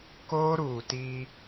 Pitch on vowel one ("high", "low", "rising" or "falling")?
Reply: high